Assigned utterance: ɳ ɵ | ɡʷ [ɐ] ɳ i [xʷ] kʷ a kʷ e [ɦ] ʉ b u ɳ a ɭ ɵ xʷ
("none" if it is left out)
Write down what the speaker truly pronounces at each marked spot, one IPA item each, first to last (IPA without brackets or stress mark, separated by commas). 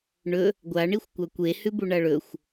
a, xʷ, h